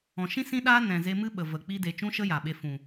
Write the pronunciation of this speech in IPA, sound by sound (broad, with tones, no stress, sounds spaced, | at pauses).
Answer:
ɔ̃˨ ʃ ĩ˦ s ĩ˦ ɗ aː˦ n ɛ̃˨ z e˧ m ɨ˦ ɓ ə˨ v ə˨ k͡p i˦ d e˧ t͡ʃ ũ˦ ʃ ə˦ j a˨ ɓ e˧ f ũ˨